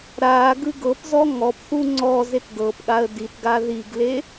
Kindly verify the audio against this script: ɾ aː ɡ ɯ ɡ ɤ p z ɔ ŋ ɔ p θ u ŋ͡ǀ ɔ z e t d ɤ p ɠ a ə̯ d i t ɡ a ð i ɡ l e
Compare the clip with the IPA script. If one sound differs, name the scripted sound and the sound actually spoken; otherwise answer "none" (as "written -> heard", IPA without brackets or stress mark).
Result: none